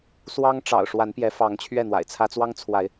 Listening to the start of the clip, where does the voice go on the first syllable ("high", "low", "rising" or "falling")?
high